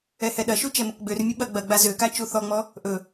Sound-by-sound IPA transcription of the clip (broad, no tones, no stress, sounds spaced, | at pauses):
ɛ h ɛ ɗ ɐ ʃ u t͡ʃ ɛ m ɘ k ɡ͡b ø r mʲ ɘ ɓ ɐ ɡ͡b ɐ ɡ͡b a z ø k a t͡ʃ u θ ɔ ŋ͡m ɔ | ʔ ɵ